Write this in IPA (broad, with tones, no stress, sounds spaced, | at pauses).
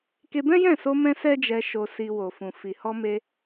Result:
k e˧ b ɛ̃˦ j ɛ̃˦˨ s o˧ m ɛ̃˧ s ɛ˦ d͡ʒ ɛ˧ ʃ o˧ s i˧ w o˨ f ũ˨ f i˨ h ɔ˧ m e˧